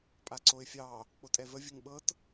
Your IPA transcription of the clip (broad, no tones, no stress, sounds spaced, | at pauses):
pʼ a ǀ o ɪ̯ fʲ ɑ | k͡p o tʼ ɛ v ə vʲ ə ŋ ɓ ɤ t